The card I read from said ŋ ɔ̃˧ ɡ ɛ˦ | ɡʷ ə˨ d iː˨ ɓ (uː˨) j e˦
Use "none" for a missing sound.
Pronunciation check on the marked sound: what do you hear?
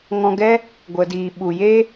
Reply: u˨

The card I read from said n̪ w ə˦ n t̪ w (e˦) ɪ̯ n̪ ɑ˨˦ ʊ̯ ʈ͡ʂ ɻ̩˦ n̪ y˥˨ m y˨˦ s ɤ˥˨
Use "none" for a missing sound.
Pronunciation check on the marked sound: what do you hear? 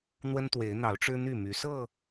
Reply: e˨˦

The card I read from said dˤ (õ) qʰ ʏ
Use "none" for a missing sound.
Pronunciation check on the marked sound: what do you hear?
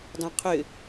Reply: õ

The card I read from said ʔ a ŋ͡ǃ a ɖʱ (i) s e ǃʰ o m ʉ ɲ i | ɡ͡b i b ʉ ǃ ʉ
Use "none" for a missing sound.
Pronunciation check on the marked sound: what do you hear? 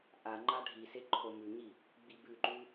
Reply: i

